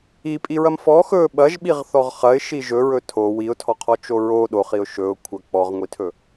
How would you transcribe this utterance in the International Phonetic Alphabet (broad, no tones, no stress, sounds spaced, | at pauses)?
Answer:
i pʼ i ɹ ɐ m f ɔ x ɵ ɓ ɐ ʒ ɓ i ʁ θ ɔ ʁ χ ɐ ɪ̯ ʃ i ʒ ɵ ɹ ɵ tʰ o w i ʊ̯ tʰ ɔ qʰ ɔ t͡ʃ o ɹ o ɗ o χ i ʊ̯ ʃ ɵ ʊ̯ kʷʰ ɐ k͡p ɔ ʁ ŋʷ i tʰ ɵ